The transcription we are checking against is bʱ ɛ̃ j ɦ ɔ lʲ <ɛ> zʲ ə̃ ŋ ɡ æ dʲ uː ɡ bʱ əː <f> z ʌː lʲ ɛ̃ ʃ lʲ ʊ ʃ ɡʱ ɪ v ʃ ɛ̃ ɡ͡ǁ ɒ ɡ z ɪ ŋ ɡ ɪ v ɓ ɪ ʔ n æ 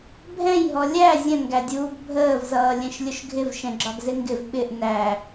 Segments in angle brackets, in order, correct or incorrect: incorrect, incorrect

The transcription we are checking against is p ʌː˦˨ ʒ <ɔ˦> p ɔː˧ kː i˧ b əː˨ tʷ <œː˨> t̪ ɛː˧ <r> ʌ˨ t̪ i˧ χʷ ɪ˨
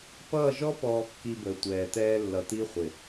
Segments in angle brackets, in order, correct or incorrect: correct, incorrect, incorrect

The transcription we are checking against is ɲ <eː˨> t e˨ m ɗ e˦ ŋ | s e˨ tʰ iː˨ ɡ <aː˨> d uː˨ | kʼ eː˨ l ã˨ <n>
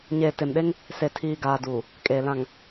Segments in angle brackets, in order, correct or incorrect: correct, correct, incorrect

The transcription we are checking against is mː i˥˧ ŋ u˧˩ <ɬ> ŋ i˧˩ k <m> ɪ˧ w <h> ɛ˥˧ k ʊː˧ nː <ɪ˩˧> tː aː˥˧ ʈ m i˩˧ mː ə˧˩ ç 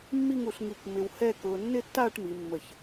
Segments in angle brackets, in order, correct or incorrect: correct, correct, correct, incorrect

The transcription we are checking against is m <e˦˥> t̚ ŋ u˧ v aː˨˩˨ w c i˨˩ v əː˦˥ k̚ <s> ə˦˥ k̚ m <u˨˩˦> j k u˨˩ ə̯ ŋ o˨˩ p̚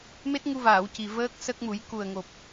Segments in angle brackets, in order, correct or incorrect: correct, correct, correct

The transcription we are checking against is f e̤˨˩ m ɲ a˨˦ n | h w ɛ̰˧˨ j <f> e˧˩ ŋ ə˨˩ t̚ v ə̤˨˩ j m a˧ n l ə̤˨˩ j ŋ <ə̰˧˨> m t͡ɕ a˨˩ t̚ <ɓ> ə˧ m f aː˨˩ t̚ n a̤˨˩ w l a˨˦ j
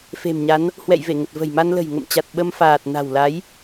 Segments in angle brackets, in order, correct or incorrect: incorrect, correct, correct

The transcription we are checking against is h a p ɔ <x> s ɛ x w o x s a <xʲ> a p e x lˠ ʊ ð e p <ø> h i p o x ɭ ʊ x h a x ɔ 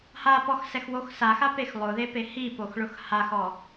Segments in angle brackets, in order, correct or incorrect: correct, incorrect, incorrect

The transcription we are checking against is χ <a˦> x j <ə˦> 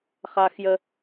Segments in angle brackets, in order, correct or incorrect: correct, correct

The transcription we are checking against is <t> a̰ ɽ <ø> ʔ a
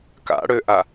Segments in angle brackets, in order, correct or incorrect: incorrect, correct

